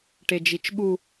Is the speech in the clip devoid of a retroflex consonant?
no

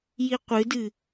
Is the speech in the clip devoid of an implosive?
yes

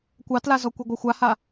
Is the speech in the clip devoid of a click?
yes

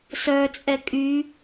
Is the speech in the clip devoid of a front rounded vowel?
no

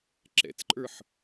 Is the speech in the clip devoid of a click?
no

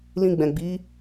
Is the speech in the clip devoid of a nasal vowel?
no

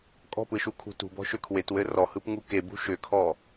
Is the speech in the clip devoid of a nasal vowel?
yes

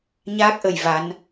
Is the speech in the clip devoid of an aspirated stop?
yes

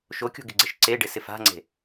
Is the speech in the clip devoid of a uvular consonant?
yes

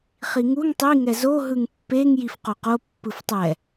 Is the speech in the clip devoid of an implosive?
yes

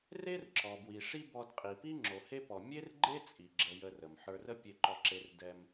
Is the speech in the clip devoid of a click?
no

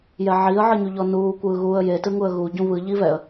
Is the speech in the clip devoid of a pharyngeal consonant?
no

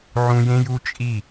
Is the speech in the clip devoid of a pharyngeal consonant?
no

